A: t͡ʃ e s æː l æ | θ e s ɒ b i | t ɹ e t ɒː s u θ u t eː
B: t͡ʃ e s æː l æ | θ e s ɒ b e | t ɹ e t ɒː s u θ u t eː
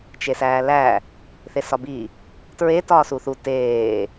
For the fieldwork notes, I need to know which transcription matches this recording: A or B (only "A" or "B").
A